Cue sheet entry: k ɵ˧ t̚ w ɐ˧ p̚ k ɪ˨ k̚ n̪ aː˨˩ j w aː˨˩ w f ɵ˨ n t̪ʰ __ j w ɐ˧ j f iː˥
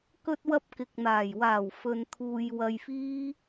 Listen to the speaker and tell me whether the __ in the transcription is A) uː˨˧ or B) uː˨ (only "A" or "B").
B